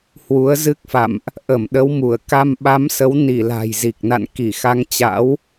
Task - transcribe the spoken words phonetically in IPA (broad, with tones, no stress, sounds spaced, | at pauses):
h w u˨˦ ə̯ z ɨ˦˥ k̚ f a̰˧˨ m ʔ | ʔ ə˧˩ m ɗ ə˨˦ w m u˧˩ ə̯ k a˧ m ɓ a˨˦ m s ə˨˦ w n i˧˩ l a̤˨˩ j z i˨˩ k̚ n a̰˧˨ n k i˧˩ x a˧ ŋ t͡ɕ a̰˧˥ w